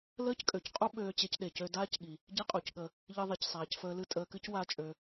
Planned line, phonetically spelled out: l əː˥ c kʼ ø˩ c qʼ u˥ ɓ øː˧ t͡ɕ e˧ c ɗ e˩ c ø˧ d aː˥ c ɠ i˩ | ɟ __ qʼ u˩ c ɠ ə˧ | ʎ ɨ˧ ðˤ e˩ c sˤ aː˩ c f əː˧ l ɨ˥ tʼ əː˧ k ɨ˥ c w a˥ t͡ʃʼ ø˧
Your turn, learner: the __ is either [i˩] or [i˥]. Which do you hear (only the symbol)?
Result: i˥